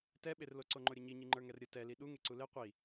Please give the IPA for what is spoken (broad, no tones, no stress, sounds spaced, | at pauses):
t ɛ ɓ e r l o ǀ o ŋ͡ǃ o ɾʲ ə ɲ i ɲ i ŋ͡ǃ ə˞ ŋ ɛ r ɾʲ ə t ɛ l i ɗ u ŋ e ǀ u l e qʷ i